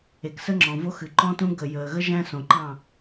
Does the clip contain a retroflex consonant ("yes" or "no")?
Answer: no